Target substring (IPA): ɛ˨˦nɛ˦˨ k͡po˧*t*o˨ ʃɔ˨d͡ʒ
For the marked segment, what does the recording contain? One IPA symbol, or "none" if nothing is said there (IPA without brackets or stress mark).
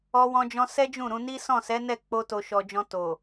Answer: t